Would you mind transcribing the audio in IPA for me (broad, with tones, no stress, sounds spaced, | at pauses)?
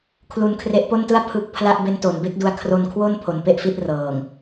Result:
kʰ l u˧ n kʰ r e˦˥ ʔ p o˥˩ n t ɯ˥˩ a̯ pʰ ɯ˦˥ k̚ pʰ l a˥˩ ʔ b e˦˥ n t o˩˦ n b e˦˥ k̚ d u˧ a̯ kʰ r o˧ n kʰ w o˥˩ n pʰ o˩˦ n p e˦˥ ʔ f i˦˥ t̚ r ɤː˨˩ ŋ